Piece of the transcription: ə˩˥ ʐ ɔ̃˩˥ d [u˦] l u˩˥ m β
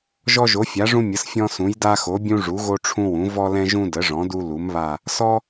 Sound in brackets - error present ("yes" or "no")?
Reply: no